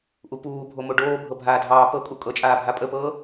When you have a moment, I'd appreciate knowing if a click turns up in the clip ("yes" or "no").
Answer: no